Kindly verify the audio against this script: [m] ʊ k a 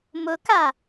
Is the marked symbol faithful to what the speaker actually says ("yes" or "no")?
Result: yes